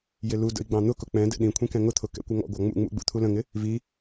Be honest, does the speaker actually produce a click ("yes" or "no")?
no